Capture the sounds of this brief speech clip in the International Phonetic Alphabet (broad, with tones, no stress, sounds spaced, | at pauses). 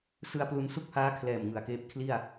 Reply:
s ɯ˧ a̯ p l u˧ n s u˥˩ k̚ h aː˦˥ kʰ l ɛː˨˩ m ŋ ɯ˨˩ a̯ k eː˦˥ p̚ kʰ l i˥˩ a̯